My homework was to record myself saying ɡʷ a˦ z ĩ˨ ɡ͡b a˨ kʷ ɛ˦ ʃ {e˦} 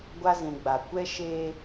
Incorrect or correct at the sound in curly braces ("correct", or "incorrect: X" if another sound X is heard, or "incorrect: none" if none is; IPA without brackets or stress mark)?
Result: correct